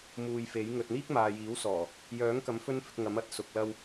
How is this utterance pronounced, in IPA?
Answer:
m uː˨ j f e˨˥ j ŋ ɵ˨ t̚ n̪ iː˥ k̚ m aː˨ j iː˨˥ w s ɔː˨˩ | j œː˨˥ ŋ k ɐ˨˥ m f ɵ˥ n f ɪ˨˥ k̚ ŋ ɐ˨˥ m ɐ˨ t̚ s ʊ˨ k̚ l ɐ˧ w

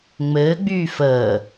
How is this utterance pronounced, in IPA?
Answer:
ŋ͡m ɘː ɡ͡b yː f əː

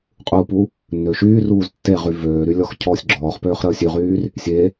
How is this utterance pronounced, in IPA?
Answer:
qʼ u p u | nː ø ʃ yː r uː z tː e ʁ y v øː ɾ y lʲ ɔ x cʰ ɔː sʲ ɡ͡ǁ ɔː χ p øː χ ɾ əː sʲ y ʁ yː r | sʲ e

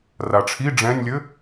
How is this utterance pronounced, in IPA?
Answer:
r a ʈ͡ʂʰ i ɖ͡ʐ ɛ̃ nʲ lʲ ɘ

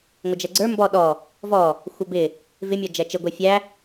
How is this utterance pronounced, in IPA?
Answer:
ŋʷ ɪ d͡ʒ ɛ ɡ͡ǀ ə˞ m b ɔ ɗ ɔ | v ɔ | xʷ ə b ɪ | v ɪ mʲ ɔ d͡ʒ ɛ t͡ʃ ɪ ɡʷ ɛ fʲ æ

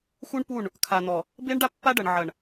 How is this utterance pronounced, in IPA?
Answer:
x u˦ ɳ p u˦˨ ɳ | kʰ a˨ n̪ ɔ˨ | b e˦ ɳ ɖ a˦ pː a˦ ɖ ɐ˨ ɳ ʕ ɐ˨ ɳ

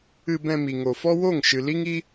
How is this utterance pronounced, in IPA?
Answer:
ɨ˧ b ɛ̃˧ m i˨ ŋ o˨ f ɔ˦ w o˦˨ ŋ ʃ ɨ˨ l i˦ ŋ i˦

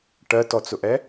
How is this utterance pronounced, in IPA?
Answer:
ʈ ɜ t ɔ t͡s ʊ ʔ ɛ

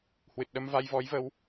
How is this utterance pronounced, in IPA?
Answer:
h w ɨ˨˩ t̚ ɗ ə˧ m v a˧ j v ɔ˨˦ j v ə˨˦ w

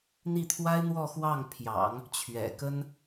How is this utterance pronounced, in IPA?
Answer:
n̪ i˥˩ t̪ʰ w a˥ ɪ̯ n̪ w ɔ˥˧ x w ɑ˥˩ ŋ pʰ j ɑ̰˨˩˦ ŋ | t͡ɕʰ ɥ ɛ̰˨˩ k ə˥ n

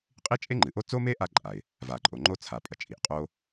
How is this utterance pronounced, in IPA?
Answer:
qʼ i˥ t͡ʃʼ e˥ ŋ͡ǃ ɨ˩ ʔ o˥ t͡s o˥ m e˥ ʔ a˥ ǃʼ a˩ ɪ̯ | v a˩ ǃʼ o˩ ŋ͡ǃ o˥ t͡sʰ a˩ pʼ ɐ˩ t͡ʃʼ i˩ ʔ qʼ o˥

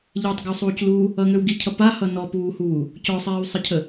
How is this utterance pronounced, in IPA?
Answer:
ʎ e tˤ ɡ ʌ w sˤ uː c l uː | ʌ ŋ ø w ɡ i cʰ ʌ p a h ʌ n ɔ p uː h uː | c ɔ sˤ iː w sˤ ə cʰ ə

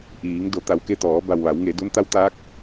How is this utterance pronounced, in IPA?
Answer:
ʔ iː˩˧ ŋ d o˩˧ t̪ a˩ w k e˥˨ t̪ ɔː˩˧ b a˩ w ʋ a˩˧ w ŋ e˩˧ d o˧˥ n t̪ a˧˥ w t̪ aː˧˥ k̚

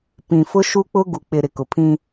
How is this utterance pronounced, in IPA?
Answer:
p ĩ˨ f ʊ˦ ʃ u˦ k͡p ʊ˦ ɡ u˨ k͡p ɪ˨ ɾ ɪ˨ k ʊ˨ pʰ ĩ˦

